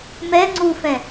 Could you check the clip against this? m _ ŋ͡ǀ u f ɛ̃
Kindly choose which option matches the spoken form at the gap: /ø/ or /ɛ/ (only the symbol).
ɛ